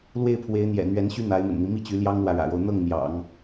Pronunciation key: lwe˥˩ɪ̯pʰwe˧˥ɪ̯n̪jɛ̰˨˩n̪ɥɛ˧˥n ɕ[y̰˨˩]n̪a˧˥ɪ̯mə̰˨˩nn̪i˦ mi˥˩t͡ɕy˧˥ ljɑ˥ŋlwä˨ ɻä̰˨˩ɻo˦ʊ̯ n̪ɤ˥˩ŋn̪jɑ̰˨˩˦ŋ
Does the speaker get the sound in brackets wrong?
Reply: yes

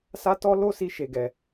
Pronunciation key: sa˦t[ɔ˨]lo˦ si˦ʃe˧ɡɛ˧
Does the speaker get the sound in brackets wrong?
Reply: yes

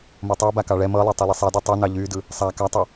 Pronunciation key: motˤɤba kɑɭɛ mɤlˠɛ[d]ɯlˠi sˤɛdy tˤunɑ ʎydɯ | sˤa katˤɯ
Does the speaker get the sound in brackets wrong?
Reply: yes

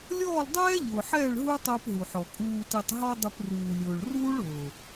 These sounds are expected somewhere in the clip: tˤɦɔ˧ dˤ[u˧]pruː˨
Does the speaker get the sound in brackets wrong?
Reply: yes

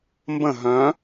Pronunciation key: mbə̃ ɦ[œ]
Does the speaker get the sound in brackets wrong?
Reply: yes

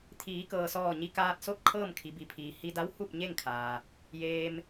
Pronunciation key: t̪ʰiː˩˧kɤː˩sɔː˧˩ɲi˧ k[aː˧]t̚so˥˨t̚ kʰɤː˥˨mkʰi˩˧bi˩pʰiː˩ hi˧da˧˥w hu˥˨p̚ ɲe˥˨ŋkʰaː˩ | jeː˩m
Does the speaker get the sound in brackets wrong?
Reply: no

